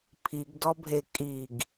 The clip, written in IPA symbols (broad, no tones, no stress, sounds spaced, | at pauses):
pʰ i ɡ d ɔ bʱ e kʼ i ɡ